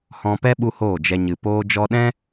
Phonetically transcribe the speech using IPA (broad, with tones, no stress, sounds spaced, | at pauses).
h ɔ̃˧ p ɛ˦ ɓ u˦ h oː˦˨ d͡ʒ ɛ˧ ɲ ɨ˨ p oː˧ d͡ʒ ɔ˧ ɗ ɛ̃˦